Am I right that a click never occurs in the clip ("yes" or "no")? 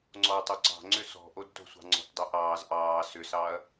no